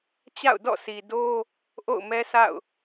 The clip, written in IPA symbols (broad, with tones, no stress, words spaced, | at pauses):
t͡ɕa̰˦˨ʊ̯dɔ̰˦˨si˨ do˦ | ʔo̰˦˨ʊ̯mɛ˦sʰa̰˦˨ʊ̯